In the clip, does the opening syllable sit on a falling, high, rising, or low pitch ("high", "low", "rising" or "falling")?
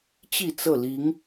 falling